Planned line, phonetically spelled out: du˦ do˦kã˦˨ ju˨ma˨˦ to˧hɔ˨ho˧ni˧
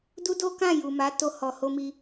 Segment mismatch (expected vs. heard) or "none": n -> m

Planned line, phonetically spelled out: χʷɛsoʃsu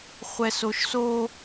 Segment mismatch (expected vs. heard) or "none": u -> o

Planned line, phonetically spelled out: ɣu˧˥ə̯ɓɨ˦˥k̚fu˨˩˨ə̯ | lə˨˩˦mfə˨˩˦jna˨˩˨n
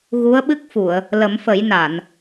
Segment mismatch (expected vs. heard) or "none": none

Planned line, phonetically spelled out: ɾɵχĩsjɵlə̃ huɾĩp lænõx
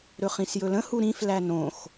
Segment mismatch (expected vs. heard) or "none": p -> f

